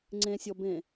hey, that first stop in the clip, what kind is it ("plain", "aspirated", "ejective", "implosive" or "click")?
click